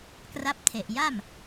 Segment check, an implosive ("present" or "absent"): absent